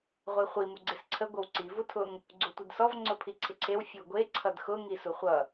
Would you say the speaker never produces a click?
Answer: no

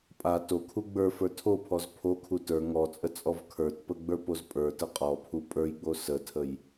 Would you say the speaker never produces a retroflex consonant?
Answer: yes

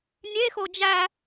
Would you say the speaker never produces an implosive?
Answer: yes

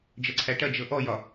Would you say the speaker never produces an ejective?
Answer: yes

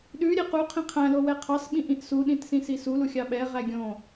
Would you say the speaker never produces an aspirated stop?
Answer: no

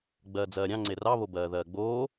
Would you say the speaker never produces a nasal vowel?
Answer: no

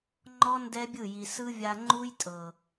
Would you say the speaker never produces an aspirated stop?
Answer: yes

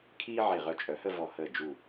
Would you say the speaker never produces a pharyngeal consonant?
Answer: no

